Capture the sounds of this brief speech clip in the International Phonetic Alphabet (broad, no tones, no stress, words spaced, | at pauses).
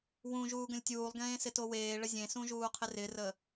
wũ ʒuːɡə̃lʲtʲuːlˠɡẽː sɪtoweːɭə zʲẽsũ ʒuːqʰɪrɪrə